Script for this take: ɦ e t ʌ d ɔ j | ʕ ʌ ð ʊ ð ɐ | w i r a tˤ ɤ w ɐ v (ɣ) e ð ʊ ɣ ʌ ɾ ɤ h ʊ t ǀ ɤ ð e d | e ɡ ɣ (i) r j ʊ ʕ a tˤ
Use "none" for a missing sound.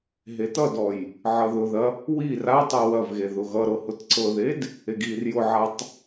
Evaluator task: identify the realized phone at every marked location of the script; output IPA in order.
ɣ, i

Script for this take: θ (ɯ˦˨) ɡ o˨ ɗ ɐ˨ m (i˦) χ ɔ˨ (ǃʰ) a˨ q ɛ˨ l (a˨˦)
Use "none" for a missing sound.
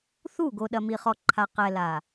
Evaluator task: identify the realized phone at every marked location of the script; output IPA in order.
u˦˨, i˨, ǃʰ, a˨

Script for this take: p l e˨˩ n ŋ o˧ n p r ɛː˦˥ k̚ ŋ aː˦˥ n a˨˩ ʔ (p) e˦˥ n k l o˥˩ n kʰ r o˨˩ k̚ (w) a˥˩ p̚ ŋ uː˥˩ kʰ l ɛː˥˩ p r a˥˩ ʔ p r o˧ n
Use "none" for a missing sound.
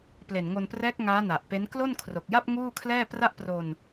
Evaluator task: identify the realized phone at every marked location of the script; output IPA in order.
p, j

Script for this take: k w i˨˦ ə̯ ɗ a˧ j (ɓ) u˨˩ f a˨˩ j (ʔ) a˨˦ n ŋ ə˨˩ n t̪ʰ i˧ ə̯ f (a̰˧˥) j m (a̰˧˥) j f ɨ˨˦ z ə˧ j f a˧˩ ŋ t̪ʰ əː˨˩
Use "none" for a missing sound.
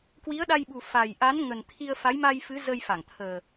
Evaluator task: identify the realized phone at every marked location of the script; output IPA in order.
ɓ, ʔ, a˨˦, a˧

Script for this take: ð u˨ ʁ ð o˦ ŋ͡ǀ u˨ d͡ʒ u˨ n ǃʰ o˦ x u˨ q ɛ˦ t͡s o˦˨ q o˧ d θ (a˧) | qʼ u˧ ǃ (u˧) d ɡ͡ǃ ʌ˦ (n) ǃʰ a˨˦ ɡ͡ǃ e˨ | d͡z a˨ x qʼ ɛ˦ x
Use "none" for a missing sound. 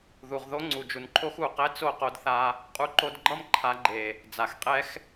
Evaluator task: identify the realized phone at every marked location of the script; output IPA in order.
a˧, o˧, m

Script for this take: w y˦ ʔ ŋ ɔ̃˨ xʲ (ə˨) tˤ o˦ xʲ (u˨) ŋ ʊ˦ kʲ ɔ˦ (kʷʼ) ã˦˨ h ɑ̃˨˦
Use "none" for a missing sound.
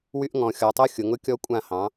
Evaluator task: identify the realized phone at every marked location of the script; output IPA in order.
ɔ˨, ʊ˨, kʷʼ

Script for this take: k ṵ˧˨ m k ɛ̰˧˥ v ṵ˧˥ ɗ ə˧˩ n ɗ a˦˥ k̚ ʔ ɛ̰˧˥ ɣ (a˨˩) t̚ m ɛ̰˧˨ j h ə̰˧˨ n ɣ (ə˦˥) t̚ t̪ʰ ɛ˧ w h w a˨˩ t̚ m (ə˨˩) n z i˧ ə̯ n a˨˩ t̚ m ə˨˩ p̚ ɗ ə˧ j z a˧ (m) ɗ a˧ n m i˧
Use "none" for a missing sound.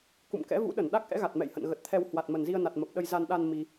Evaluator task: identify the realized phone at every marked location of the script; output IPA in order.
a˨˩, ə˨˩, ə˨˩, n

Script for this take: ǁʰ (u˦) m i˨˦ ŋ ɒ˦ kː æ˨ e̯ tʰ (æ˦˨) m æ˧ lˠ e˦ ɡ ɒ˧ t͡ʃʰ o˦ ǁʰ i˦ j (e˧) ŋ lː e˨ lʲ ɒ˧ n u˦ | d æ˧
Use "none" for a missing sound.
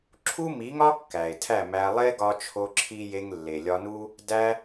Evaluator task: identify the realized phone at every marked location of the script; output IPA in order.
u˦, æ˦˨, e˧

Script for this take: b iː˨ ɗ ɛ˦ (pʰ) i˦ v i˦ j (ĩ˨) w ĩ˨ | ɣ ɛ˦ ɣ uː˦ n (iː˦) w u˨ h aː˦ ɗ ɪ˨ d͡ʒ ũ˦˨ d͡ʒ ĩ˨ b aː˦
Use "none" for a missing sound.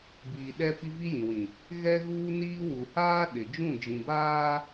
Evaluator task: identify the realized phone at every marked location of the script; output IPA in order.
p, ĩ˨, iː˦

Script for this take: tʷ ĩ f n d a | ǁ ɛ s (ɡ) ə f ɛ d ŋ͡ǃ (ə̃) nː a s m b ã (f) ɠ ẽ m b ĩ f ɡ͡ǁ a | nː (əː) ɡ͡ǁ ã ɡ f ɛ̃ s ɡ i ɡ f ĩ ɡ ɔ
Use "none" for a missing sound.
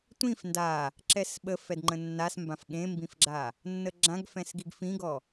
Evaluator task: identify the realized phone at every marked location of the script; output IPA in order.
ɓ, ə̃, f, ə

